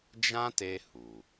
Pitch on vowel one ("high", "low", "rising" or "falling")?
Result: high